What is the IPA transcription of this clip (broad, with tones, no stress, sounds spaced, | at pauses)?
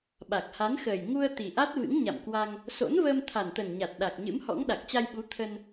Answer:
ɓ a˨˩ k̚ h a˨˦ n x əː˨˩ j ŋ u˧ ə̯ t̪ i˨˩ ʔ a˦˥ t̚ v ɨ̰˧˥ ŋ ɲ a̰˧˨ m k w a˧ ŋ | s o̰˧˥ n v əː˧ m t̪ʰ a˨˩ n t̪ ə˨˩ n ɲ a˨˩ t̚ ɗ a˨˩ k̚ ɲ ɨ̰˧˥ m h ɔ̰˧˥ ŋ ɗ a˨˩ k̚ t͡ɕ a˧ j ɓ u˨˦ t̪ʰ ə˧ n